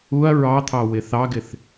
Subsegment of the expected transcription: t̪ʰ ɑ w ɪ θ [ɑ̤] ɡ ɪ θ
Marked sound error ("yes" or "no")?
yes